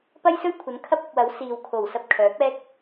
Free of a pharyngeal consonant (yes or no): yes